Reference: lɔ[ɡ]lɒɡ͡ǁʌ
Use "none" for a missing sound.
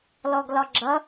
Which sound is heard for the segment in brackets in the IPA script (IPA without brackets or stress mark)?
ɡ